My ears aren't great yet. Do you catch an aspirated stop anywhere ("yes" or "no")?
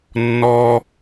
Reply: no